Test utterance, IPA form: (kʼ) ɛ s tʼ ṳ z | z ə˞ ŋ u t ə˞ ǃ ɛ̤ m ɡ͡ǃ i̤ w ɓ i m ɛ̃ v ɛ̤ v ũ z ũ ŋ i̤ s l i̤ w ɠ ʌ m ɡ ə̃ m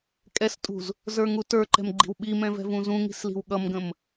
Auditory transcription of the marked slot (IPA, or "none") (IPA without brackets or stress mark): kʼ